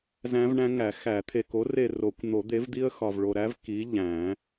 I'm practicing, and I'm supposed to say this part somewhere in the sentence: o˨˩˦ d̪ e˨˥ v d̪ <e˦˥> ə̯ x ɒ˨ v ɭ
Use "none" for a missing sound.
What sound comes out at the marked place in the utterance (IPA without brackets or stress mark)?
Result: i˦˥